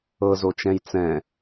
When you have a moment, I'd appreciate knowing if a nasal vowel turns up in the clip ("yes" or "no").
yes